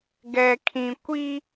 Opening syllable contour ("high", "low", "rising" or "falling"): low